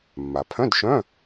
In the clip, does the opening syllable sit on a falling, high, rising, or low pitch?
low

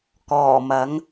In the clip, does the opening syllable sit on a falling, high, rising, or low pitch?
low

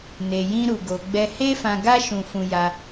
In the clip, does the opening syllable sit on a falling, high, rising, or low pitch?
low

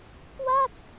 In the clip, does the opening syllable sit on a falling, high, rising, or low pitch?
falling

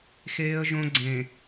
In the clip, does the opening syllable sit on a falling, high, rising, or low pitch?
high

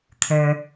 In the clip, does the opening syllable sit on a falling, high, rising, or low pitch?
low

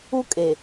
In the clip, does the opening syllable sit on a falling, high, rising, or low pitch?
high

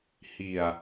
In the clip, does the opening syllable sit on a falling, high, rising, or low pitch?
low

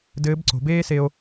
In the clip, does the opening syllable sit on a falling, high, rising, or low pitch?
rising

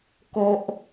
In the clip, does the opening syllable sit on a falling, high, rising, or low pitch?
high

